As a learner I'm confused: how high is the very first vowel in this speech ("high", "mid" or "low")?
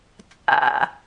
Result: low